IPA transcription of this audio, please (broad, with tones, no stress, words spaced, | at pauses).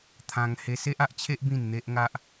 t̪ʰã˧ŋ he˧se˦ʔa˦ʔt͡ɕʰe˦ʔ bĩ˥˧nn̪e˦ʔŋa˦ʔ